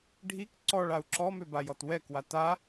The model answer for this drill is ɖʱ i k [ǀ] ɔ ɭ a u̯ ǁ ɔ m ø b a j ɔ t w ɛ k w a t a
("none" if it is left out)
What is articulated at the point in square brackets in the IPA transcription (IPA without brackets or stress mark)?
ǀ